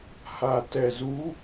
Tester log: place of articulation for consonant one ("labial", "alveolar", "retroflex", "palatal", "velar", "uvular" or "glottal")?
glottal